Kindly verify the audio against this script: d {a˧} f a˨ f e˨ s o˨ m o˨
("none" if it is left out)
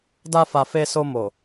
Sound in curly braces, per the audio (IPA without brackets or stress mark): a˧